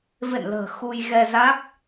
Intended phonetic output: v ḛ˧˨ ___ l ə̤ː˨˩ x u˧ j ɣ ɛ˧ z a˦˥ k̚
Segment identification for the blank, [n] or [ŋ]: n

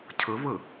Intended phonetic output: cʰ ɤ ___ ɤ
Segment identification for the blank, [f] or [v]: v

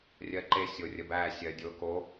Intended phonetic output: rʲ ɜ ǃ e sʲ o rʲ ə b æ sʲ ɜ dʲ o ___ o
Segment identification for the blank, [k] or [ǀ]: k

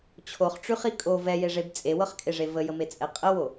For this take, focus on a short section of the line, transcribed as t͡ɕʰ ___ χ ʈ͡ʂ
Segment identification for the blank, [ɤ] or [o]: o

